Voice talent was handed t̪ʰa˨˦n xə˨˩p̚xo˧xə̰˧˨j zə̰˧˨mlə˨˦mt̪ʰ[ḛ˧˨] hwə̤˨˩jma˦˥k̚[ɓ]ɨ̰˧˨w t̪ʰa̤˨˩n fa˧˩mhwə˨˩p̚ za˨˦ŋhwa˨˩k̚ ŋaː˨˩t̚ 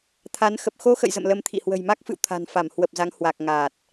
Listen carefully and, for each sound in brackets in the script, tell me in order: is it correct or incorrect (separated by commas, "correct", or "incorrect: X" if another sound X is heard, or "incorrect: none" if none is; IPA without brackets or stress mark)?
incorrect: ḭ˧˨, incorrect: f